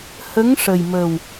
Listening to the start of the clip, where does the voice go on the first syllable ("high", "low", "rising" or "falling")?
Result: rising